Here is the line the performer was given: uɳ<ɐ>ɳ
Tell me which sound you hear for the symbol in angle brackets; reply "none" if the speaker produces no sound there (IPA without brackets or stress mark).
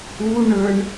ə˞